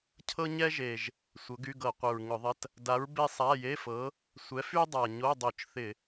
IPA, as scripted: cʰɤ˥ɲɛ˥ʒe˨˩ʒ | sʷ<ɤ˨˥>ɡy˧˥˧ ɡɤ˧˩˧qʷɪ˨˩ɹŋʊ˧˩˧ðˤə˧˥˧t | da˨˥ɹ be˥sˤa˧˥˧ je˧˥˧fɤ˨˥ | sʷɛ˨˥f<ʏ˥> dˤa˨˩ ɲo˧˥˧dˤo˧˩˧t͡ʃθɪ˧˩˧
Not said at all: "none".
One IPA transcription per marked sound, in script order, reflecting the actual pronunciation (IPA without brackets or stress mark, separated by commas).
ɤ˨˥, y˥